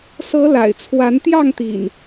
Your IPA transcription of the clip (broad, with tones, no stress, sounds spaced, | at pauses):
s ɤ˨˦ l a̰˨˩ ɪ̯ t͡sʰ w a˨˦ n t̪ j ɑ˥˨ ŋ t̪ ḭ˨˩ n